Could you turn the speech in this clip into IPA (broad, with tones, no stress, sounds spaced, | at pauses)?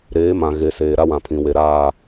ɾ eː˨˦ m ã˨ ɣ e˨ s eː˨ ɾ a˦ w ã˨ pʰ ĩ˨ w e˨ ɾ aː˦˨